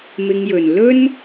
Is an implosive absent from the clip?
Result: yes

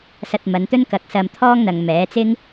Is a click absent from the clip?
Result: yes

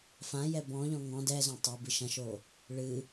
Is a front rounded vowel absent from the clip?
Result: yes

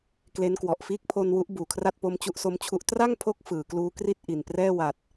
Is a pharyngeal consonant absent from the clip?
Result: yes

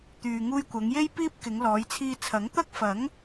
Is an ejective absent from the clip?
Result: yes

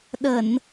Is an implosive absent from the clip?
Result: no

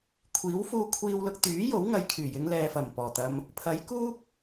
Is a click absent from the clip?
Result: yes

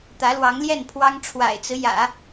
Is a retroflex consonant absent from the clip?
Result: no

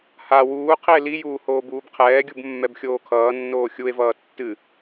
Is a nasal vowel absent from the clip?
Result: yes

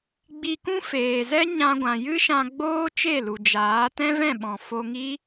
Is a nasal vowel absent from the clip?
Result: no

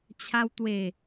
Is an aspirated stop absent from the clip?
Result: no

